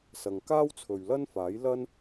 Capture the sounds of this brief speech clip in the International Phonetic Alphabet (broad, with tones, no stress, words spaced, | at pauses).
sɐ˨ŋkaː˥wt͡sʰɵ˨ɥlɐ˥n faː˨˥jlɐ˥n